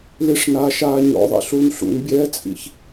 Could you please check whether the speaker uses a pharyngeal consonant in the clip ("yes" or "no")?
no